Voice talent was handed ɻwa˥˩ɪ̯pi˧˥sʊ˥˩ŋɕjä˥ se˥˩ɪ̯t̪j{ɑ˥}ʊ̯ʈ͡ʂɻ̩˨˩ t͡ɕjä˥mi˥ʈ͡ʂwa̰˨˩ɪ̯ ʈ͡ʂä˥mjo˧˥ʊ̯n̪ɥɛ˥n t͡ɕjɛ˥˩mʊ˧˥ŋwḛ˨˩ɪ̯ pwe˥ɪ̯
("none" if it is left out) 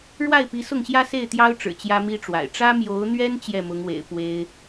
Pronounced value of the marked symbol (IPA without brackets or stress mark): ɑ˥